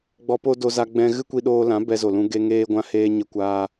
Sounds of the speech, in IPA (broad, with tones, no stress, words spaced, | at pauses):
ɡ͡bɔ˧po˦do˧za˧ ɡ͡bɛ̃˧ ɣɨ˦kʷi˧ɗoː˧lã˨˦ bɛ˧zo˨lũ˧ ɡe˧ ŋeː˦ɡʷã˦ heː˧ ɲə˧kʷaː˧